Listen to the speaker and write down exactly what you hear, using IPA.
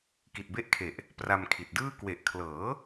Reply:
k i˨˩ t̚ b e˦˥ ʔ kʰ e˨˩ ʔ | p r a˧ m kʰ i˨˩ t̚ d ɯː˥˩ k w e˨˩ ʔ kʰ l ɤː˩˦

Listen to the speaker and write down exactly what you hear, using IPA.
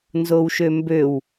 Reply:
n z o w ʃ ø m b ø w

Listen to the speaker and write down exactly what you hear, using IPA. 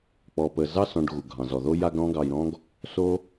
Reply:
k͡p ɔ˨ p ə˨ z ɑ˦ s ɔ̃˨ ɖ ɣ u˩ ɡʱ ɑ̃˩ z ɔ˩ ð o˦ j a˦ ɡ ɾ ɔ̃˦ ɡ ɑ˨ j ɾ ɔ̃˥ ɡ | s o˥

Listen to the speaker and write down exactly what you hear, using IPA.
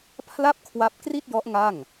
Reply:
pʰ l a˥˩ p̚ kʰ w a˦˥ p̚ k r i˥˩ t̚ j ɔ˦˥ ʔ ŋ a˥˩ ŋ

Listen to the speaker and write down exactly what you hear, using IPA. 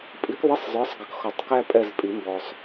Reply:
pʼ i˨˥ k ðˤ ɪ˧˥˧ sˤ zˤ ə˞˨˥ sˤ ɡ ʌ˨˥ k x ɔ˨˩˦ tˤ k æ˥ pʼ ɛ˦˨ z pʼ i˨˩˦ m b ɔ˨ sˤ

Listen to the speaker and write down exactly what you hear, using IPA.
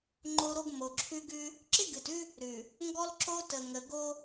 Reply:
ŋ͡ǃ o˦ ɾ o˦ ɡ m o˨ ǁʰ ʉ˦ ɡ ʉ˦ | ǁ ɪ˦ ɡ ɨ˨ t ʉ˦ | ɾ ʉ˨ | ŋ ɡ ɔ˦ l ǁ o˦ t ə˨ ŋ ə˨ ɡ o˦

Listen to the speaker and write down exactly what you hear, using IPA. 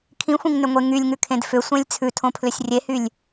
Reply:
kʰ ĩ xʷ ĩ ŋ n ʏ ŋʷ e ŋ y lʲ ŋ ʉ kʰ ẽ d f ʏ sʷ ẽ lʲ t͡sʰ ʉ tʰ õ pʰ l ʏ sʲ rʲ e h y lʲ

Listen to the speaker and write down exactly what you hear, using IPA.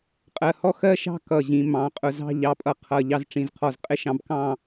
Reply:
qʼ ɜ˧˩ h ɔ˥˧ x ɜ˥ ʃ ɑ̤˥˧ k ʌ˧˩ ʑ ĩ˩˧ m ɑ̃˩˧ qʼ ʊ˧˩ z ɑ̤˥˧ ʎ ɑ˧˩ pʼ ʌ˧ qʰ ʌ˧˩ ʎ ɑ˧ z ʈ͡ʂ ĩ˧˩ z qʰ ɔ˧˩ z qʼ ɪ˥ ʃ ɑ̃˧ b k ɑ̃˥˧

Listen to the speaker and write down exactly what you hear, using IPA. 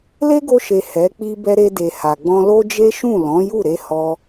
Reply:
l e˦ ɡ o˧ ʃ e˨ h ɛ˨˦ k͡p i˦ b ɛ˧ ɾ e˧ d e˨ h a˨ ɡ͡b ɔ̃˧ l o˦ d͡ʒ e˦ ʃ ũ˦˨ l ɔ̃˨˦ j u˦˨ ɾ e˧ h ɔ˧

